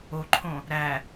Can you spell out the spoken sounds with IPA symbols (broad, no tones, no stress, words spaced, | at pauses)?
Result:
oǃʰõ | ɾæ